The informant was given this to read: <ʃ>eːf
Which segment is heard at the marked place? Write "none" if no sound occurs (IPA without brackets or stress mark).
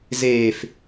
z